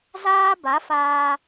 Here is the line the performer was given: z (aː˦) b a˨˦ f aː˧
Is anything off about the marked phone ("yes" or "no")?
no